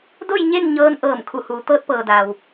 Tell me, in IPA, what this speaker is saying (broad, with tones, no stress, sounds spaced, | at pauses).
d o˥˨ j ɲ e˥˨ n ɲ ɤː˧˥ n ʔ ɤː˧˩ m kʰ u˧˩ h uː˩˧ t̪ ɤː˧ t̚ p ɤː˩ d aː˩ w